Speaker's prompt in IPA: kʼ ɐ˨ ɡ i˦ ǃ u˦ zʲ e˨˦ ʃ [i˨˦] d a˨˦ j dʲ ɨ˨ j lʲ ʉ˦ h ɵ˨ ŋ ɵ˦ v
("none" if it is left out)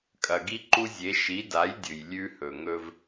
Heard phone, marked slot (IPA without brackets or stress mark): i˨˦